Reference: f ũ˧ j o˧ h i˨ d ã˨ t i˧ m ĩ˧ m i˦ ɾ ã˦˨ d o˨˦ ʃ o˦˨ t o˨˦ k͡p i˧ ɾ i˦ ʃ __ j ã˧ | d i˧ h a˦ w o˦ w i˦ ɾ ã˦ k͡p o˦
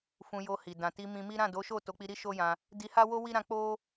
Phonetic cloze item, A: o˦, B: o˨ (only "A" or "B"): A